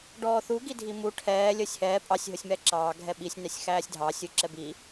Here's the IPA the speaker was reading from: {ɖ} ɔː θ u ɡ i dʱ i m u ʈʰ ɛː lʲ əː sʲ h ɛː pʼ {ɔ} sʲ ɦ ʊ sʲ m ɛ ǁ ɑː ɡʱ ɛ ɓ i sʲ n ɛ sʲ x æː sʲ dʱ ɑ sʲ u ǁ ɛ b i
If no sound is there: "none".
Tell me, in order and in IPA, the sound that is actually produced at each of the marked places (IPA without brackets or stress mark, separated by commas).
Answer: ɖ, ɑ